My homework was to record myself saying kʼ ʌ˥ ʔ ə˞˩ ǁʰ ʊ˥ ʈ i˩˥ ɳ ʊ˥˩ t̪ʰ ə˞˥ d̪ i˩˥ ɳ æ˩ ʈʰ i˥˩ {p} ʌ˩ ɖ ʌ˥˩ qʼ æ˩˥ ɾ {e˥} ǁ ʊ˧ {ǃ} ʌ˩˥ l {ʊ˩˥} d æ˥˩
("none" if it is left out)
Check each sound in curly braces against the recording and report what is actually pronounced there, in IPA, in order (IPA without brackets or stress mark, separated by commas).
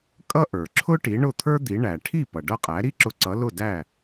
p, i˥, ǀ, ʊ˥˩